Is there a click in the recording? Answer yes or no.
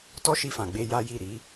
no